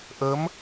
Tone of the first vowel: rising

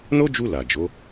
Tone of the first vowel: high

